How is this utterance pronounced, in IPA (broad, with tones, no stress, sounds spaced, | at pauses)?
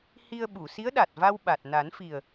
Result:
h i˧ ə̯ ɓ u˨˩˨ s i˧˥ ə̯ ɗ a˨˩ t̚ v a˧ w ɓ a˨˩ t̚ n a˨˩˦ n f i˨˩ ə̯